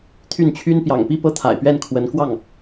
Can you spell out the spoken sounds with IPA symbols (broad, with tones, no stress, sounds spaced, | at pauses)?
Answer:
t̪ʰ y˥˩ n t͡ɕʰ y˥ n p j ɑ̰˨˩ ŋ p i˥˩ p ɤ˥ t̪ʰ a̰˨˩ ɪ̯ p ɥ ɛ˥˩ n kʰ w ə˧˥ n k w ɑ˥˩ ŋ